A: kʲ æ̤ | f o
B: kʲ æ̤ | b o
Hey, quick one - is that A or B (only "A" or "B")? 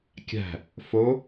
A